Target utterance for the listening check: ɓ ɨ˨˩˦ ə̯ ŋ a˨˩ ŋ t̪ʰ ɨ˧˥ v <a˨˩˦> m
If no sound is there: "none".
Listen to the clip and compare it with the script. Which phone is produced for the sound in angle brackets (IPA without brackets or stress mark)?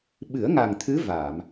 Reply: a˨˩˨